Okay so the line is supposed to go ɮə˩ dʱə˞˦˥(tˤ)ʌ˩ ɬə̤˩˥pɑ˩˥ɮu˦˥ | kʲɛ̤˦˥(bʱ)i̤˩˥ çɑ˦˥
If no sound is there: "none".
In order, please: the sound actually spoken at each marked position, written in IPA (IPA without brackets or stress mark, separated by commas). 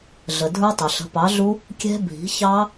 tˤ, bʱ